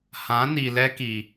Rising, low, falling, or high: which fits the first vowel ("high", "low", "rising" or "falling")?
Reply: rising